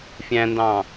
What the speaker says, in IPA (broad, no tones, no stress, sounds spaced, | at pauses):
fʲ æ̃ n d ɑ̃